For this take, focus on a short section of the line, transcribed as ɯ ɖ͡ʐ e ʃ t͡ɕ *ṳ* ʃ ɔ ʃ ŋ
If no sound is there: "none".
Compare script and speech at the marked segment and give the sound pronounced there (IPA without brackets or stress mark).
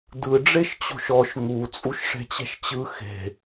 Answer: o̤